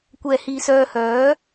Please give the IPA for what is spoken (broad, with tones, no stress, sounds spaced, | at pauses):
kʷ ɛː˧ h iː˧ s œː˧ h œː˨˥